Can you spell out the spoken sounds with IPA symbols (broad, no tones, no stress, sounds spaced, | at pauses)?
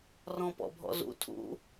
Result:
r ɔ̃ p ɔ̰ bʱ ɔ̰ z ṵ tʰ ṵ